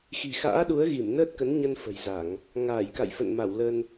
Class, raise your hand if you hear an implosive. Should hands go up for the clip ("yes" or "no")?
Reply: yes